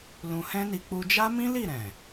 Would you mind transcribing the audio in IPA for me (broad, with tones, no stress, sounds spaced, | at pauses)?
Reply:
l ũ˧ h ɛ̃˦ n i˧ k͡p u˧ d͡ʒ a˦ m ĩ˦ l i˦˨ ɾ ɛ̃˨